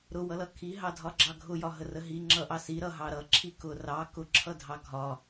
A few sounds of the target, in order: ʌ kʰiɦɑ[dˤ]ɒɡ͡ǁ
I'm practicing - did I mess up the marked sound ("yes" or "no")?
yes